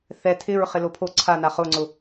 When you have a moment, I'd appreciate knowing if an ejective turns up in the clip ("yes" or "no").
no